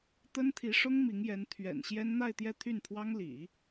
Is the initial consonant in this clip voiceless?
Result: yes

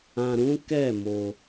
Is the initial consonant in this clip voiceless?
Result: no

